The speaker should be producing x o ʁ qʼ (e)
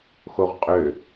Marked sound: incorrect: ø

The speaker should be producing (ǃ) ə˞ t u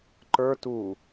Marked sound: correct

